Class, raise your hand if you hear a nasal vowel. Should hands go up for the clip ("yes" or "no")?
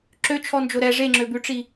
no